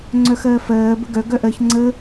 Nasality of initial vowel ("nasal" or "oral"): oral